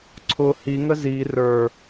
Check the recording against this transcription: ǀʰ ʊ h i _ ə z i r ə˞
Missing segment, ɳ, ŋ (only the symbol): ŋ